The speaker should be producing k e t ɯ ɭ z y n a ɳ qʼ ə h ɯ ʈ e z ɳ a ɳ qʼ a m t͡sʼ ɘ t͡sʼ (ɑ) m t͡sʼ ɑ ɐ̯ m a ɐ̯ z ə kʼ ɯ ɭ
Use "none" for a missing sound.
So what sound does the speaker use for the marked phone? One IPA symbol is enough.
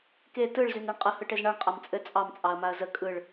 ɑ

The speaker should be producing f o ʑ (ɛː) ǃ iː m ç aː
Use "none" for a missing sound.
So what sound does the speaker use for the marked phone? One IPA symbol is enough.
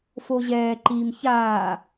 ɛː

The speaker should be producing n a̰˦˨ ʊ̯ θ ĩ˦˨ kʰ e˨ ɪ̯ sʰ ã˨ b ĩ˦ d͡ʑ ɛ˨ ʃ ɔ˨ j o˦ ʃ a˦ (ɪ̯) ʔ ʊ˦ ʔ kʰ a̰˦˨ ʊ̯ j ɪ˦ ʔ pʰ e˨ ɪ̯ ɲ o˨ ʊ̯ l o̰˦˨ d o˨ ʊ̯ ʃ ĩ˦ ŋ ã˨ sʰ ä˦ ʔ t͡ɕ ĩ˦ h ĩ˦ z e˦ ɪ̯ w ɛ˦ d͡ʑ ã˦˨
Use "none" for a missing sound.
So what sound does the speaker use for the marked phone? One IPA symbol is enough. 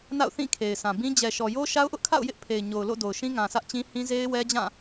ʊ̯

